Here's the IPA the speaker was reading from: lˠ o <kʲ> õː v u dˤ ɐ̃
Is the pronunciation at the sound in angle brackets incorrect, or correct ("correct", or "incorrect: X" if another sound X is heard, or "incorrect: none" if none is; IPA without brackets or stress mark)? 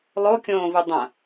correct